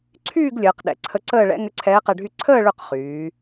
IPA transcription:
ǀʰ yː˥˧ ɡ lʲ əː˩˧ q ɗ ɛ̰˩˧ ǀʰ ə˧˥ ǀ əː˥˧ ɭ ɛ̰˧˥ ŋ ʏ˧˥ ǀʰ ɛː˧˥ q ɛ˧ ɖʱ y˥˧ ǀʰ əː˥˧ ɭ ʏ˥˧ q χ yː˩˧

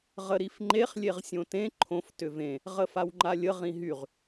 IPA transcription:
ʁ ə ɾ i f ŋ͡ǃ e χ lʲ e ʁ sʲ õ t ẽ ǃʰ õ f t ʏ v ẽ | ʁ ə f a w ŋ͡ǃ a lʲ ə ʁ ĩ ɦ y ʁ

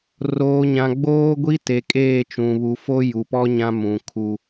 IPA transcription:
r oː˨ ɲ ã˨ ɡ͡b oː˦ ɡʷ i˦ t e˨ kʼ eː˦˨ t͡ʃ ũ˨ β u˨ f o˦ j u˨ p ɔ˦ ɲ ã˦ m ũ˨ kʰ u˦

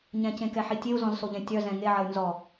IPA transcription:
ɲ ɛ̃ c ẽ k ɛ ħ i tʲ e u̯ z ɔ̃ z s o ʎ ɛ̃ tʲ œ z ɛ̃ ŋ e ʕ ɐ y̯ n z ɔ

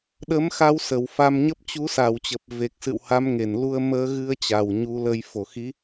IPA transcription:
ɗ ə˨˦ m x a˧ w s ə˧˩ w f a˧ m ɲ ə˦˥ p̚ t͡ɕ u˨˦ s a˨˩ w t͡ɕ ə˨˩ p̚ v e˨˩ k̚ s ɨ̰˧˨ w h a˨˦ m ŋ e˧˩ n l u˧ ə̯ m əː˧ ɣ ɨ˧ ə̯ t͡ɕ a˨˩ w ɲ u˨˦ l ə˧ j f o˧˩ x i˨˦

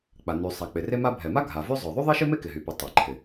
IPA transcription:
k͡p a˩ n y˩ sˤ a˩ k͡p ɪ˩ r e˥ m a˥ bʱ ɛ˩ m a˥ ɡʱ a˩ v y˥ zˤ œ˩ ðˤ y˥ ðˤ e˥ ʃ ɪ˥ m e˥ k ɪ˩ ɦ y˩ p y˩ tˤ e˩ ǃʰ ɪ˩

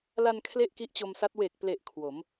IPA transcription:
l a˧ n kʰ l e˥˩ ʔ k i˦˥ ʔ t͡ɕ o˧ m s a˦˥ t̚ w e˨˩ k̚ p l e˨˩ ʔ kʰ w o˩˦ m

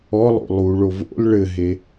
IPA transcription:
ɔ lˠ o̰ lˠ u ɭ o v o̰ l ɭ ɘ ɦ e

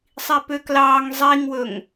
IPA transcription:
sˤ i p ø k l ɑː ŋ zˤ i ŋ w ɵ ŋ

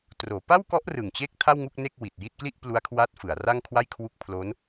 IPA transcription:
t r oː˩˦ p a˥˩ w k ɔ˦˥ ʔ r ɯ˨˩ ŋ t͡ɕ e˥˩ k̚ tʰ a˥˩ w ŋ u˥˩ k̚ n e˥˩ k̚ w i˨˩ t̚ j i˥˩ t̚ k l i˥˩ ʔ p l u˦˥ a̯ kʰ w a˦˥ t̚ f ɯ˩˦ a̯ r a˥˩ ŋ kʰ w a˥˩ j kʰ w u˥˩ k̚ pʰ l o˦˥ n

